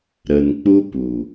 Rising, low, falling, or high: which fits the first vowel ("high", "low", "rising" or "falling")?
low